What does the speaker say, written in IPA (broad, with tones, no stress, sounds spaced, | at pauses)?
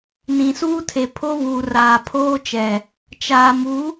n ĩ˨ s uː˦ tʰ e˨ pʰ o˦ β uː˨ r aː˨ pʰ oː˦ t͡ʃ ɛ˨ | t͡ʃ aː˨ m u˨˦